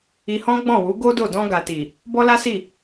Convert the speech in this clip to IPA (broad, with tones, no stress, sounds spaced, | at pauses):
i˧ h ɔ̃˦ ɡ͡b ɔ̃˦˨ w u˨˦ ɡ o˦ d o˦˨ d ɔ̃˧ ɡ a˨ t i˨ | b ɔ˦ l a˦ s i˦˨